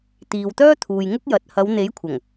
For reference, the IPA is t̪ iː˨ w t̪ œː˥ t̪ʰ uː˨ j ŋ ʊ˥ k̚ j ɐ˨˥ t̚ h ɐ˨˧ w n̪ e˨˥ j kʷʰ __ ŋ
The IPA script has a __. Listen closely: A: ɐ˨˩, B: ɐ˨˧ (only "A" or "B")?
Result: A